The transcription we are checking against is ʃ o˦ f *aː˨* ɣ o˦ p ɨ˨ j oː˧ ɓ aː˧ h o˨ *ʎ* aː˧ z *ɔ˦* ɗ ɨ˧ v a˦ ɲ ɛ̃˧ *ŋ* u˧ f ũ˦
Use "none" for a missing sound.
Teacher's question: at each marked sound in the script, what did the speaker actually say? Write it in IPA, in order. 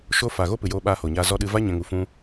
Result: aː˨, ɲ, ɔ˧, ŋ

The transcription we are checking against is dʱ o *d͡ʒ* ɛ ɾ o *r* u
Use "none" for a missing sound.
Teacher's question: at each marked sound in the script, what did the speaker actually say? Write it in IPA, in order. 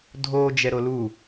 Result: d͡ʒ, l

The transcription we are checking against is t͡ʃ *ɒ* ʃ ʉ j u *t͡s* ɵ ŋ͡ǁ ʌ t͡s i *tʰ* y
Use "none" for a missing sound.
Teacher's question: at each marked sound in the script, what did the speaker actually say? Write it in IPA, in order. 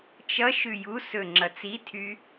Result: ʌ, s, tʰ

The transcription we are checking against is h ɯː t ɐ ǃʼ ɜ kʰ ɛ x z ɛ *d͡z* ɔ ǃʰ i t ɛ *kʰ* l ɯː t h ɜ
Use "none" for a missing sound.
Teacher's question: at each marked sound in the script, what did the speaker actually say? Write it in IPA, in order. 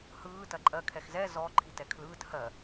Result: z, kʰ

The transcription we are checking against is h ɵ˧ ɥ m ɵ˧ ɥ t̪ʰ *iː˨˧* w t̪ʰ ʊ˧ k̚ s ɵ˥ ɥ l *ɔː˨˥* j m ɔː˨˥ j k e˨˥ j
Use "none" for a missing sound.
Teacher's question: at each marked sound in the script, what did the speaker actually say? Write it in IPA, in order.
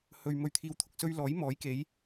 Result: iː˧, ɔː˨˥

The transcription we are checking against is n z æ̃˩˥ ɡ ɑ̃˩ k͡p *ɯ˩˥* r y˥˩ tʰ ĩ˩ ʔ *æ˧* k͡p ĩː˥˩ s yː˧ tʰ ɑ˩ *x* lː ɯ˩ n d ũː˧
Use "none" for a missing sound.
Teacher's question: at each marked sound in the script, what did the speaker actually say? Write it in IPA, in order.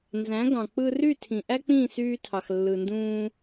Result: ɯ˧, æ˥, x

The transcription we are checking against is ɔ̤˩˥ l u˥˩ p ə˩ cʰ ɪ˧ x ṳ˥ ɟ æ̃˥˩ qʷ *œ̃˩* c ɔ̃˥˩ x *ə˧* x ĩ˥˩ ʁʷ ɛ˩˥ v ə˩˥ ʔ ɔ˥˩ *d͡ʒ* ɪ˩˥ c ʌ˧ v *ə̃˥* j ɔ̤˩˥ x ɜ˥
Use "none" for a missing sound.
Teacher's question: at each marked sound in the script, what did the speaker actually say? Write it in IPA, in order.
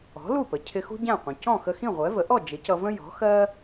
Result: ə̃˩, ə˧, d͡ʒ, ə̃˥

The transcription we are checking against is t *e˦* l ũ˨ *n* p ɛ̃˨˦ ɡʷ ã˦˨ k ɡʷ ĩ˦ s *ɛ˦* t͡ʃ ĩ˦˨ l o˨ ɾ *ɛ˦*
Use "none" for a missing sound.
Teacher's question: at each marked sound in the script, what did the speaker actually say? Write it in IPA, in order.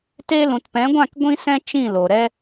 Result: e˦, t, ɛ̃˦, ɛ˦

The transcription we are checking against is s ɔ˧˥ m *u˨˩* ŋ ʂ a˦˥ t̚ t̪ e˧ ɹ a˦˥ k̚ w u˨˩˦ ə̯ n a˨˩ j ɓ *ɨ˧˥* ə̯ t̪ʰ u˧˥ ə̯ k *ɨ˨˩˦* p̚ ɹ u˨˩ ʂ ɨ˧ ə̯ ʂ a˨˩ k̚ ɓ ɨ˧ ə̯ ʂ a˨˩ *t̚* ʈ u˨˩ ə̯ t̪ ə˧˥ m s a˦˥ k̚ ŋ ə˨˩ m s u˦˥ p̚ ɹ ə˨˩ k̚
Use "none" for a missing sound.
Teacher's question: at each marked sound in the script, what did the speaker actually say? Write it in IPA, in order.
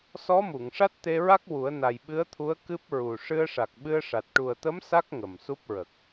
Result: u˨˩˨, ɨ˧˥, ɨ˦˥, t̚

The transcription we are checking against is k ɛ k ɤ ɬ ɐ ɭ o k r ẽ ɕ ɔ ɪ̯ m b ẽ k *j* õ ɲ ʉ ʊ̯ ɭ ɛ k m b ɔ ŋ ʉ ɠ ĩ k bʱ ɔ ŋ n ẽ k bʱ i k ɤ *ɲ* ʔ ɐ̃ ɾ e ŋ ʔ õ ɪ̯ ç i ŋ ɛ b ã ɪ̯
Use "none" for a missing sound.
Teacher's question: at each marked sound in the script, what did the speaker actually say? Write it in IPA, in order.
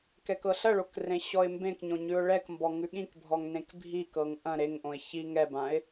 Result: ɲ, ŋ

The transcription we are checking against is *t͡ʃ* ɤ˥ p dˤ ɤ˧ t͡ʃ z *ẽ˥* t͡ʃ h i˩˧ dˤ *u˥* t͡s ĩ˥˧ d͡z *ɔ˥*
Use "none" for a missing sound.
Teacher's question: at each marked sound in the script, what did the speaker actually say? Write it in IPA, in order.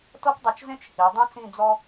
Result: t, ẽ˥, ũ˥, ɔ˥

